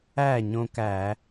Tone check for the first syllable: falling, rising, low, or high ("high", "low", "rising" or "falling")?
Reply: falling